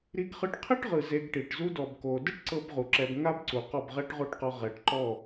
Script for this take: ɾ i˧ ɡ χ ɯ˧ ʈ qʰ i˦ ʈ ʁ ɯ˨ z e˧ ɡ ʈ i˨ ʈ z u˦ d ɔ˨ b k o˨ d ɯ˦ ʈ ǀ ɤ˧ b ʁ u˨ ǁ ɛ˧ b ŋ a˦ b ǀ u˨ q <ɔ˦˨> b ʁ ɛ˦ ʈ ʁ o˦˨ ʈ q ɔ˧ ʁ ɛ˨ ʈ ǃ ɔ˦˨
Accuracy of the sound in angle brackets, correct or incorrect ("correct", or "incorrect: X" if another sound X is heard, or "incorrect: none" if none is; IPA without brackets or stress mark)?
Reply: correct